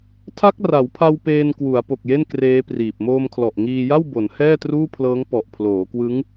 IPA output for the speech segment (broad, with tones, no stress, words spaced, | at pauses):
tʰa˦˥k̚ra˩˦wpʰa˧w peː˧nkwu˩˦a̯ po˨˩k̚je˥˩n kreː˦˥priː˨˩p̚ moː˧mkʰlɔ˨˩ʔ ŋiː˧ja˥˩w bo˩˦nhɛː˥˩ truː˥˩pʰlɤː˦˥ŋ pɔ˨˩ʔpʰloː˩˦kwɯ˦˥ŋ